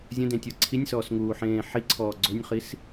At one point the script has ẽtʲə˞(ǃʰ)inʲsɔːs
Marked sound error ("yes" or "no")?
yes